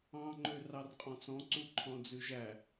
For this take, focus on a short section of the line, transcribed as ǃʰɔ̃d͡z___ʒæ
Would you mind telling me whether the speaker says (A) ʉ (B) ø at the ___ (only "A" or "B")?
A